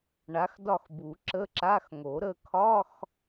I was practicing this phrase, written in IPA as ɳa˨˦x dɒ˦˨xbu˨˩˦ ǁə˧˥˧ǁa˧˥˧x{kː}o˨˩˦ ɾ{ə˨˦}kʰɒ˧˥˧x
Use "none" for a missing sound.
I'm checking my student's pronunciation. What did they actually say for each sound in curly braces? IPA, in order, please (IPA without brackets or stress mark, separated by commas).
ŋ, ə˦˨